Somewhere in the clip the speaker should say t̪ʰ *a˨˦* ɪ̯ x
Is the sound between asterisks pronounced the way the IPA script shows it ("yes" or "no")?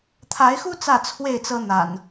yes